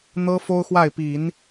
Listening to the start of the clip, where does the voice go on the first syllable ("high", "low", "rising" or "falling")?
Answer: high